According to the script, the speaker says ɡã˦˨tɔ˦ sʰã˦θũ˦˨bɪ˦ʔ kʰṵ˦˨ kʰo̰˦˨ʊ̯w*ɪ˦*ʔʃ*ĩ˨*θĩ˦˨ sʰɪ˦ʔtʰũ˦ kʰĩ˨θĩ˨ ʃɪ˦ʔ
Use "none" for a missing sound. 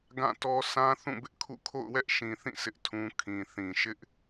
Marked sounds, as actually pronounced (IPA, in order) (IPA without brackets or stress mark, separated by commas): ɛ˦, ĩ˨